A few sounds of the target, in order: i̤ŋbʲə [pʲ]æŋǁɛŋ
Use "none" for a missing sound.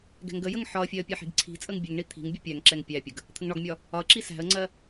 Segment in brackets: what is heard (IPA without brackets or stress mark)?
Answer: pʲ